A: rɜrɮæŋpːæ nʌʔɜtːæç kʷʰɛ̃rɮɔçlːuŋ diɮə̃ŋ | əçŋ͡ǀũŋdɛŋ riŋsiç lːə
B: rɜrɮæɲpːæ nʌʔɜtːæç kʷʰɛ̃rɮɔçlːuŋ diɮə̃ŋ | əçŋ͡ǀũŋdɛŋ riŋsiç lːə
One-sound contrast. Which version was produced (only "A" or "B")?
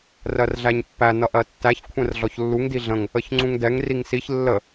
B